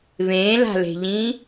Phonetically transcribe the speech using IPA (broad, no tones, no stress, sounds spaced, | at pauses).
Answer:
β ẽ l a̤ l e̤ ʎ ĩ